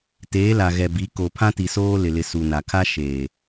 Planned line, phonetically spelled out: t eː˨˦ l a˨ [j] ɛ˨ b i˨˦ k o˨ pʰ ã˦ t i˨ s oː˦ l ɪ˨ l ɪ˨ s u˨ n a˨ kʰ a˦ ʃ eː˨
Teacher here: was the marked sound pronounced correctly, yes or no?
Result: no